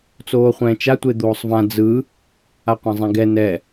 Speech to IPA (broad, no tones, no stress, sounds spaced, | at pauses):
t͡s oː χʷ ɛ̃ː t͡ʃ a tʷ e d̪ oː sˤ v ã d͡z ɯ | a qʷ ã zˤ ẽ ɡ ɛ n ɛ